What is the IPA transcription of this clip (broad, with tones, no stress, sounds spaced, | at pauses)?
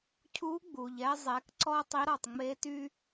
cʰ u˧˥ ɡ͡b u˩ ʎ ɛ˧ zˤ ɛ˩˧ k ǀ ɔ˥ tˤ i˧˥ ɾ ɒ˩ tˤ ŋ͡m e˧˥ t y˥